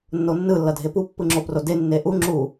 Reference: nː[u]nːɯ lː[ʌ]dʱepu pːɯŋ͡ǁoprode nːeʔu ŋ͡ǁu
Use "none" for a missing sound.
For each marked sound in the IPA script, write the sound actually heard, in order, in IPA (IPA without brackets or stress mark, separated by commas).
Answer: o, ʌ